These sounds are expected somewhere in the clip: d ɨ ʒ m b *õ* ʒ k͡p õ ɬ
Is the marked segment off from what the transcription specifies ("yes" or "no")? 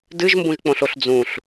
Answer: yes